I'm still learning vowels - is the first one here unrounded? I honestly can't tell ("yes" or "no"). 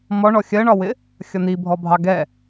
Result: no